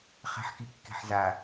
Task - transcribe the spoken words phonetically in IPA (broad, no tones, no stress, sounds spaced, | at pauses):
χ ɛ̤ ħ k i kː e̤ ħ z a